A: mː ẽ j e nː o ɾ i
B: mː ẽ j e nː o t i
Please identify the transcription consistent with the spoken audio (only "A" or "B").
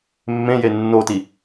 B